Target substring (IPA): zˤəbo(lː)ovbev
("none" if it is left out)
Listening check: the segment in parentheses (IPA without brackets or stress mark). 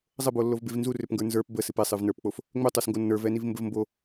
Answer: lː